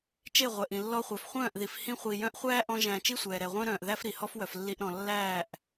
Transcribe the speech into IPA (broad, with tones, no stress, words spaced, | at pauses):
t͡ʃe˦˨ʁʷɛ˨ʔĩ˨ lːɔ˧χʷœ˨fχʷœ̃ː˦˨ʔði˨f hĩ˧χʷi˨jœ̃˧ʔχʷæː˦ ʔɔ̃˦ʒæ̃˧ t͡ʃi˦sʷɛː˨ ɾɛ˨ʁʷœ̃˦ɾœ̃ː˨ʔ ðæ˦fɾi˨ hɔ˦fwœ˨flːi˧ʔɾɔ̃˨ lːæː˦˨ʔ